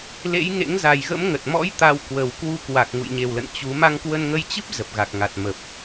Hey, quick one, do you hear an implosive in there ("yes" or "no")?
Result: no